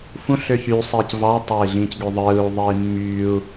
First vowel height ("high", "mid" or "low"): high